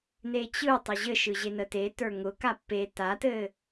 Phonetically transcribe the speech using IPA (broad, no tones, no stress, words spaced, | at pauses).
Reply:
net͡ɕɯ tˤəʑɘʃɯ ʑenəte tə˞ŋʊ kapːe tatɘː